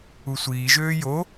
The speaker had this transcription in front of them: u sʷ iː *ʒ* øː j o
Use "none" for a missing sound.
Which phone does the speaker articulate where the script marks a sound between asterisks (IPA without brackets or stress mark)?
ʒ